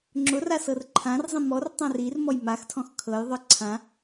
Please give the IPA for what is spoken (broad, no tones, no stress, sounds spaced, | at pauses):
ŋ͡ǁ ʊ r a s ɤ r ǃʰ ã r zˤ ĩ m ɔ r tˤ ã r i r m ɔ j m a x tʰ ɔ̃ x kʰ ɤ j ðˤ ɤ ǀʰ ã